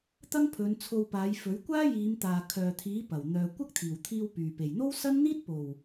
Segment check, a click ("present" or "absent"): absent